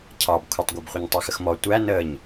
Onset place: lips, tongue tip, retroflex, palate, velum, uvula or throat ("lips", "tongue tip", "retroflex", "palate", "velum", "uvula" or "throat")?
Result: palate